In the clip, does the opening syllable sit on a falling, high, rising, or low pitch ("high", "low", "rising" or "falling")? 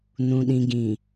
low